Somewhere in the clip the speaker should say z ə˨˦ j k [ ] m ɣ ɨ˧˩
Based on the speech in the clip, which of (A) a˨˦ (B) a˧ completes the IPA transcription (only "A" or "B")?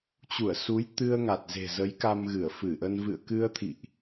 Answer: B